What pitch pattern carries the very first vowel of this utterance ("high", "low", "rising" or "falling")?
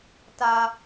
high